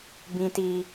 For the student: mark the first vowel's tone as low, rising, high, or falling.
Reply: high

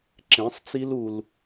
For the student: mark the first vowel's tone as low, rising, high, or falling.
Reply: rising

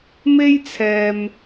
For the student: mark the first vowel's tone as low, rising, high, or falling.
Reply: high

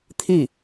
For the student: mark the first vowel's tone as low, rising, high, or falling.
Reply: falling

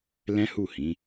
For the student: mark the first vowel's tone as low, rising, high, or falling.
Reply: high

